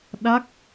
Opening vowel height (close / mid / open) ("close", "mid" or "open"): open